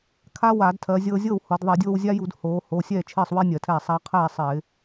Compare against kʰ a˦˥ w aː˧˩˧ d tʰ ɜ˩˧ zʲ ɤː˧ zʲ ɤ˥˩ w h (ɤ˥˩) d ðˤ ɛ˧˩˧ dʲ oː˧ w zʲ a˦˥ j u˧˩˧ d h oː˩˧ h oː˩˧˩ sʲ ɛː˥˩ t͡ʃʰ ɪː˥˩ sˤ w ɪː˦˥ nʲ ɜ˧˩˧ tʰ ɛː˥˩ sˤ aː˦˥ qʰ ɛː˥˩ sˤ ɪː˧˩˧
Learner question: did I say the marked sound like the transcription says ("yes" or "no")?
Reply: no